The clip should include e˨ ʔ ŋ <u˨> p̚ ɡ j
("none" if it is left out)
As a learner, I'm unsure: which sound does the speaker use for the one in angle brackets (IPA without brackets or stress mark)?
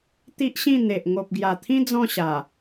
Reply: o˨